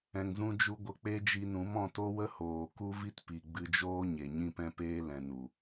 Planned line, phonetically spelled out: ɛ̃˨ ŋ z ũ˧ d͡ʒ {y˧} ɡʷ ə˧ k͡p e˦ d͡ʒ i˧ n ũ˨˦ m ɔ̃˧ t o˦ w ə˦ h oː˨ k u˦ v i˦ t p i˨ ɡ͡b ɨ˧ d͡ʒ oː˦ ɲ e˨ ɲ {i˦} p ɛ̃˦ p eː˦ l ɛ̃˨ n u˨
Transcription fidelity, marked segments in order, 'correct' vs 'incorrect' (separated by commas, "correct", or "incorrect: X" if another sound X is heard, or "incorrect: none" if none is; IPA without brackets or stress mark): incorrect: u˧, incorrect: ĩ˦